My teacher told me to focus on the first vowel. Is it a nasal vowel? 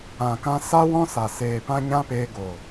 yes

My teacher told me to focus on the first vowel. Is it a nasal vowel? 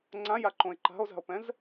yes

